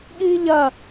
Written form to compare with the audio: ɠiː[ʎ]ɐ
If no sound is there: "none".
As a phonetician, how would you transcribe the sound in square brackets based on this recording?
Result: ʎ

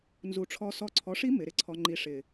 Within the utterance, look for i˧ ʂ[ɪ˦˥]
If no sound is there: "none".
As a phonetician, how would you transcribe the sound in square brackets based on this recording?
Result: ɪ˨˩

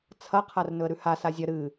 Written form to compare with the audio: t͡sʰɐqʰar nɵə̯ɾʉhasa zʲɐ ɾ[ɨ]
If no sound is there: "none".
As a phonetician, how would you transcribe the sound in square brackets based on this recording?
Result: ɨ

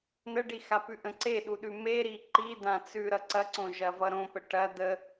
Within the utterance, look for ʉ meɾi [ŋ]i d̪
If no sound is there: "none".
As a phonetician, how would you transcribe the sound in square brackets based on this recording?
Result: ǃ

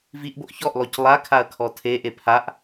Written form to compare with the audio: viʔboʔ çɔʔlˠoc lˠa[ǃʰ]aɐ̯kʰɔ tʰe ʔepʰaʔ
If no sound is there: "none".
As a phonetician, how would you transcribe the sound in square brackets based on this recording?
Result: kʰ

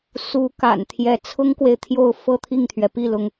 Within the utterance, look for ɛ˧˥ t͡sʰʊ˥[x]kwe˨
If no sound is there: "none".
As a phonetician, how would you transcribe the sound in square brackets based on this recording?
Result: ŋ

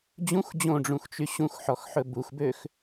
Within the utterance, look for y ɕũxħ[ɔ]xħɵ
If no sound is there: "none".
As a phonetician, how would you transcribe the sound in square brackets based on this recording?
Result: ɔ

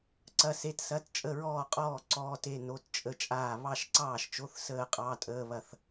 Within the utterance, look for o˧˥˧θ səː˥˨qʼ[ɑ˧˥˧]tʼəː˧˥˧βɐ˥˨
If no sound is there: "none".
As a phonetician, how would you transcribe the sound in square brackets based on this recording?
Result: ɑ˧˥˧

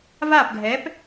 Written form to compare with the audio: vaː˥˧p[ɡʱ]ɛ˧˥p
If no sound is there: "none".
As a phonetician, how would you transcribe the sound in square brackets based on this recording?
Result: ɡʱ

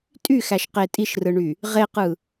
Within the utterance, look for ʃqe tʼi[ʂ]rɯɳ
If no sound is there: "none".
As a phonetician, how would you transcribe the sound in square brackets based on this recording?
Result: ʃ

